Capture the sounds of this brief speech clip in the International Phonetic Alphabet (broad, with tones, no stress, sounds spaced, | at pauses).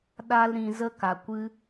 ɗ a˦ l ɾ ĩ˨ z ə˦ k a˨ kʷ ɨ˦